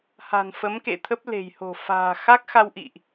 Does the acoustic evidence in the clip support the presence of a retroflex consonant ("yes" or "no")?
no